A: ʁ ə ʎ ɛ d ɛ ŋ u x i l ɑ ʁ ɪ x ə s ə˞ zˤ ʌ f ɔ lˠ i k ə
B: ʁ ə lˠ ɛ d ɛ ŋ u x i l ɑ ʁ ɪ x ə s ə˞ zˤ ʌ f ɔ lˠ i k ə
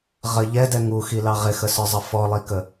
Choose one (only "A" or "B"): A